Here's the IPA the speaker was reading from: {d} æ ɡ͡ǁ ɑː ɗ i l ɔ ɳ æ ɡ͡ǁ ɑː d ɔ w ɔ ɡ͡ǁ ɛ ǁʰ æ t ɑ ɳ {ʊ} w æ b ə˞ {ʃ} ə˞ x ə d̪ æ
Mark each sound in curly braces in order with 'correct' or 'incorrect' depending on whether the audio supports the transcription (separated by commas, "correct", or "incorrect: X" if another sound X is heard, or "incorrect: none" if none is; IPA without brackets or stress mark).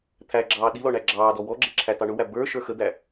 incorrect: t̪ʰ, correct, correct